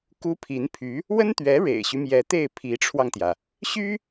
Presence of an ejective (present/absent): absent